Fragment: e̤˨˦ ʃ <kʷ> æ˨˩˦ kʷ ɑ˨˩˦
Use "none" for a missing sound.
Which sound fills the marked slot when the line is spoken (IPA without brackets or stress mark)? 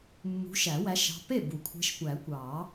kʷ